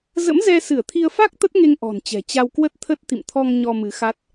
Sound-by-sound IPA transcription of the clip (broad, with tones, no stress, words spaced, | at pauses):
zə̰˧˥mzɛ˧sɨ˧˩ə̯t̪ʰi˧ə̯ fa˦˥k̚ t̪ə˦˥t̚ŋe˧ŋ ʔɔ̤˨˩nt͡ɕɛ̤˨˩ t͡ɕa˧wkwə˦˥t̚t̪ʰə˦˥t̚ t̪ḭ˧˨mt̪ʰɔ˧ŋ ɲɔ˧mɨ˨˦ xa˦˥t̚